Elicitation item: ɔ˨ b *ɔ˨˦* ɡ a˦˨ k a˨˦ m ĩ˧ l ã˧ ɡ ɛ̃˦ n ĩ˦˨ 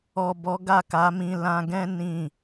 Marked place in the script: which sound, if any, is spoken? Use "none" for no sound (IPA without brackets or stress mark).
ɔ˨˦